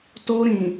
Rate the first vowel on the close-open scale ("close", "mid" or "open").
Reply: mid